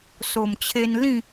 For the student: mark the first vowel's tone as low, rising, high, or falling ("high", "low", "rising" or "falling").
low